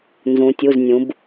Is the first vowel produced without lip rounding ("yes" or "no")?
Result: no